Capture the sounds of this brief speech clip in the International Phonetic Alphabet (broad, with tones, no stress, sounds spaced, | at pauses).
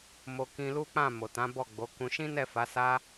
m o˧ k ĩ˧ l u˦ k͡p ã˦˨ m o˨ t ã˨˦ b ɔ˦˨ ɡ͡b o˨˦ k ũ˧ ʃ ĩ˦ n ɛ˦˨ f a˨˦ s a˦